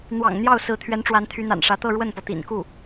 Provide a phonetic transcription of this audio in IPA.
n̪ w ɑ̰˨˩ ŋ n̪ j ɑ˥˩ ʊ̯ s ɹ̩˧˥ t̪ʰ ɥ ɛ˧˥ n ʈ͡ʂ w a˧˥ n t̪ʰ y˧˥ n̪ a̰˨˩ n ʂ ä˧˥ t̪ ɤ˥˧ ɻ w ə˥˩ n p ɤ˩ t̪ ḭ˨˩ n k u˥˩

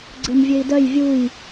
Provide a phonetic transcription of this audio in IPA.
ɡ͡ǀ ɘ m vʲ ø i̯ d œ j vʲ u j

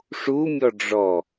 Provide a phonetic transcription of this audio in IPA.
ʂ u mʲ ɔ ɖ͡ʐ ɔ

